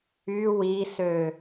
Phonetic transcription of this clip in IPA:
y wisø

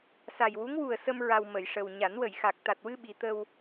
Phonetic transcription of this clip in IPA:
sa˨˩jwu˧˥ŋwu˨˩ə̯sə˧m ɹa˧w mə˨˩˨j ʂə˨˩w ɲa˨˩˦nwə˨˩˨jxa˨˩k̚ t̪a˨˩t̚wɨ˧ ɓi˧˥ t̪ə˧w

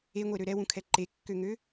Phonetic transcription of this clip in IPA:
eŋʷeɾø ɾɛwũkʰɛ ǃekːøŋø

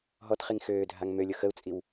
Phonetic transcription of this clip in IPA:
ɦɔtχiŋ xøːdʱaŋ mølʲʊ xəu̯t͡sʼiw

